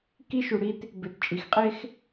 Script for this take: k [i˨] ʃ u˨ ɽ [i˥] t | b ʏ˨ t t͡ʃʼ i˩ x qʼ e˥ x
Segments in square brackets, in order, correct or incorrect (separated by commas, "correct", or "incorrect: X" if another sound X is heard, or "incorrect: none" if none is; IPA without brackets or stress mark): incorrect: i˥, correct